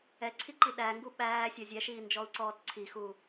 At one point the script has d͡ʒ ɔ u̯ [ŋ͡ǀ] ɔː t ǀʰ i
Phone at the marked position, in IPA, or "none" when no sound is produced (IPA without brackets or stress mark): ǀ